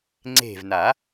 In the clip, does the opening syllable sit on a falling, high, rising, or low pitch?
falling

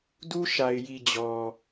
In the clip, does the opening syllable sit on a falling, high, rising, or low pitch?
high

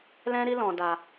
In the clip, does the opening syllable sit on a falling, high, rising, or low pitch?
high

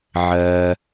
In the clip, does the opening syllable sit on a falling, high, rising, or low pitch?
low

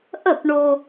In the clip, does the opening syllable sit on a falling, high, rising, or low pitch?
falling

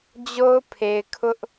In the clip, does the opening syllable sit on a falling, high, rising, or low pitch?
high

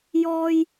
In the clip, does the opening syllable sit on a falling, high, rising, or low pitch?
high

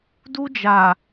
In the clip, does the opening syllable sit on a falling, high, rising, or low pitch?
high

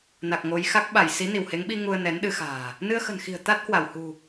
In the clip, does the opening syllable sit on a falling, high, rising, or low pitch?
low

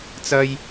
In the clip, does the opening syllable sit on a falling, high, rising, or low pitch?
high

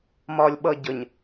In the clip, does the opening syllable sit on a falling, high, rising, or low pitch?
low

